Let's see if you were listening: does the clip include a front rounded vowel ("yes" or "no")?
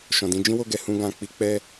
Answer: no